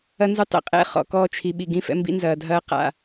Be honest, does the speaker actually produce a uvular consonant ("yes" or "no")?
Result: yes